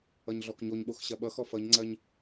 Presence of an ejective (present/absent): absent